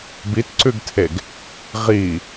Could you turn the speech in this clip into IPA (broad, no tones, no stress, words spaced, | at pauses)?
bitǀʉɡtʰeɡ | ʁi